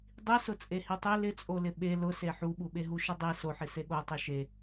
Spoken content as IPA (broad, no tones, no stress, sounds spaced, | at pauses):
dˤ i s ʊ t͡sʼ e h i tˤ e l ɪ t͡sʼ o l ɪ ɓ e l ʊ s e ħ u ɓ u ɓ e ɦ u ʃ e dˤ i s o ħ i s e ɠ o tˤ i ʃ e